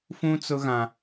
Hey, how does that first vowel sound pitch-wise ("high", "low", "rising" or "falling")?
high